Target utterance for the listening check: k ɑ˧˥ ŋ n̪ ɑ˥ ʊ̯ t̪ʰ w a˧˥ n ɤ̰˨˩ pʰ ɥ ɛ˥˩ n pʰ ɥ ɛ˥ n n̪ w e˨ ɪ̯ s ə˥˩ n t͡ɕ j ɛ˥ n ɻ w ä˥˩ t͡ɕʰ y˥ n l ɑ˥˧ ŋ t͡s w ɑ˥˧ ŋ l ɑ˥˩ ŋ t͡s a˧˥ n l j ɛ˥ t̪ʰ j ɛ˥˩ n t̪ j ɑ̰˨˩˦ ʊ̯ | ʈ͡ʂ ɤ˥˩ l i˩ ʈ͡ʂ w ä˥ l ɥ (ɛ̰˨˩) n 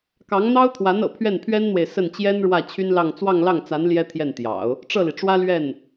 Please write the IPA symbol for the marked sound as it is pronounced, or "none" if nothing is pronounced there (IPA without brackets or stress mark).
ɛ˥˩